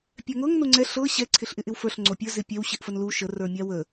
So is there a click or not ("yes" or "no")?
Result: yes